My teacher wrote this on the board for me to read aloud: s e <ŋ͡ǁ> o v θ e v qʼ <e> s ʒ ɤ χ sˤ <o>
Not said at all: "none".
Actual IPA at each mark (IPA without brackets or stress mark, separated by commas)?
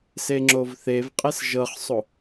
ŋ͡ǁ, e, o